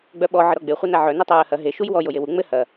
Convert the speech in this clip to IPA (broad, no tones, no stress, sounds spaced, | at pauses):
ɡ͡b œ ɓ ɔ ʕ ə ɾ ɔ ɡ͡b e χʷ œ n a ʕ œ n ɐ tˤ ɘ ɹ ə h ɐ ɦ e ʃ u j w ɔ j o j e w u ŋ͡m ɘ h ɐ